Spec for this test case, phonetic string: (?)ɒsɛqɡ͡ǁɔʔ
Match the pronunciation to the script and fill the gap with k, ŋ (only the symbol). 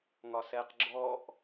ŋ